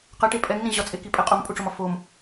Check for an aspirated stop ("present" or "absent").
absent